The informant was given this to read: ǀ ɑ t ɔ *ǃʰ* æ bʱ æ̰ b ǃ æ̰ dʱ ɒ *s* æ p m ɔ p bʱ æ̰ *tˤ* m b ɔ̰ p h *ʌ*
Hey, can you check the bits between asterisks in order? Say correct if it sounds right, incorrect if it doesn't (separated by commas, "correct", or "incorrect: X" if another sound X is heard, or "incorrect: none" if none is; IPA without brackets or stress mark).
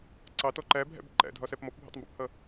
incorrect: ǃ, correct, correct, correct